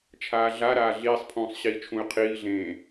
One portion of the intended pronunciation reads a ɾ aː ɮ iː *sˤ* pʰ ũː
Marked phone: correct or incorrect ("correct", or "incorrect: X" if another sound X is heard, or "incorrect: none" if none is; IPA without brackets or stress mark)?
correct